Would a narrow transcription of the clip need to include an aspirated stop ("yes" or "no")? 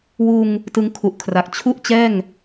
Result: yes